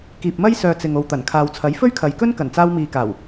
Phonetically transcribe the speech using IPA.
kiː˨p̚mɐ˥jsœː˨ t͡sɪ˨ŋo˨wt̪ɐ˨˩n kʰaː˨wt͡sʰɐ˨˥j fɵ˥ɥkʰɐ˨jkɵ˥n kɐ˨˩nt͡saː˧wmiː˨kaː˨˩w

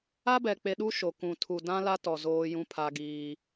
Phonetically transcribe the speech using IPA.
a˦bɛ˨k͡pe˨ɗu˦ ʃo˨ kũ˨tʰu˨ dã˦la˦tɔ˨ zoː˦jũ˦pʰa˦ɡiː˦

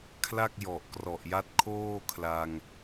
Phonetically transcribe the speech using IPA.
kʰla˥˩k̚jɔ˨˩ʔ krɔ˨˩ʔja˦˥t̚kʰoː˥˩kʰla˧ŋ

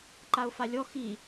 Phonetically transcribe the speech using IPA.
ǃaʊ̯falʲɔ xi

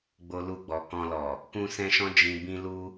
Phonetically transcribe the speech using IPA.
ɡ͡bo˦lu˦˨ɡ͡bɔ˧ kɔ̃˧lɔ˨ | kũ˦ sɛ̃˦ʃɔ̃˦ d͡ʒĩ˧ bĩ˦lu˦

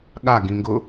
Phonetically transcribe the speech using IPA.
ɠaɡĩŋɡʊ

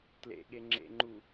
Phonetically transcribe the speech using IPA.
tlḛɠeŋ͡ǁḛŋ͡ǃu

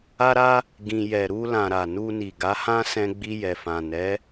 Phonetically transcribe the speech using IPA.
a˦ ɾa˦ | ɡĩ˧ jɛ˨ɾu˧lã˨ ɾa˨nu˧ni˨ ɡa˨˦hã˦sɛ̃˧ ɡ͡bi˧jɛ˨fã˨ nɛ˨˦

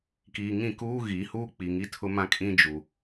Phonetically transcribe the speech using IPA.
kiː˨ŋĩ˦˨kuː˦ ɣi˨˦huː˦ k͡pi˨ŋi˦tʰʊ˦mã˦ kʼĩ˦ d͡ʒu˨

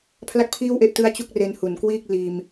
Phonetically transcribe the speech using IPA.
pʰla˥˩k̚pʰiː˥˩wʔe˦˥ʔtɯ˦˥a̯ t͡ɕu˥˩k̚re˧n hu˩˦nkwiː˥˩k̚ liː˧m

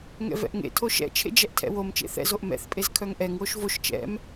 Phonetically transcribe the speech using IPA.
ŋɛ̰vɛ̰ʔŋḛ tʰoʃɛ̰t͡ʃʰḛ d͡ʒɛʔtʰɛ̰wom t͡ʃḛθɛ̰ zoʔmɛ̰θpʼez kʰœŋʔɛŋ woʃvoʃ t͡ʃɛ̰m

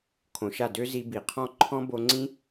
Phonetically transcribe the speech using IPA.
kʰõ˨ʃa˦˨ dø˦ zi˧bi˨ qʰɔ̃˦ ǃʰɔ̃˦ bo˧ŋ͡ǀĩ˦

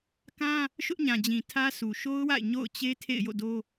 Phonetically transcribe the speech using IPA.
kã˦ | ʃʊ˦ʔɲã˨d͡ʑĩ˨ tʰä˦sʰu˨ ʃo˦ʊ̯wa̰˦˨ɪ̯ ɲo̰˦˨ʊ̯t͡ɕe˦ tʰḛ˦˨ɪ̯jo̰˦˨do˦

